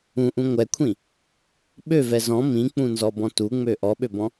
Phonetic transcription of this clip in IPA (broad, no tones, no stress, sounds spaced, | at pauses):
ũ ʔ ũ ŋʷ ɛ kʷʰ ĩ | ɓ ø v ɛ z ɔ̃ m ĩ k͡p ũ n z ɔ b ɔ̃ t u ŋ͡m ø ʔ ɔ ɓ ø b ɔ̃